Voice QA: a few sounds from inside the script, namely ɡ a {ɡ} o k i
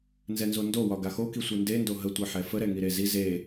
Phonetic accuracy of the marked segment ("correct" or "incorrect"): incorrect